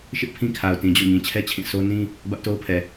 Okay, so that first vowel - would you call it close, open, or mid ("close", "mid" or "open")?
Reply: close